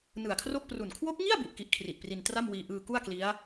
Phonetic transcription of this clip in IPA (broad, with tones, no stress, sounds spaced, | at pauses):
n ɯ˨˩ a̯ kʰ r o˥˩ k̚ p r u˨˩ n kʰ w o˦˥ k̚ ŋ i˥˩ a̯ b u˨˩ ʔ k i˦˥ ʔ kʰ r i˨˩ ʔ p r i˧ n t r a˥˩ m w iː˧ ʔ ɯː˧ k u˥˩ a̯ k l i˦˥ a̯